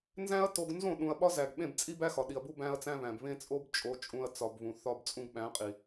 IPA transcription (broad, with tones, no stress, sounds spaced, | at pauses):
n z æ̃˦ ɐ̯ t o˧ ɡ n z õ˦˨ ɗ ũ˨ ɐ̯ ɓ ɒ˦ z æ˨ ɡ ɓ ẽ˦˨ b t͡sʼ i˦ b æ˦ x ɒ˨ ɗ i˨ ɐ̯ b u˦ b æ̃˦ ɐ̯ t͡s æ̃˦ β æ̃˨ b β ẽ˦ t͡sʼ o˦ b t͡ʃʼ o˧ t͡ʃʼ ũ˧ ɐ̯ t͡s ɒ˨ b β ũ˨ θ ɒ˧ b t͡sʼ ũ˧ ɡ ɓ æ̃˨˦ qʼ i˨